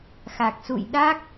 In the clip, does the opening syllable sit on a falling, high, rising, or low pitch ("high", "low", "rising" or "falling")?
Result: low